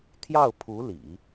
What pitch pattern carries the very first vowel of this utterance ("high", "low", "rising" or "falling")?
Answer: falling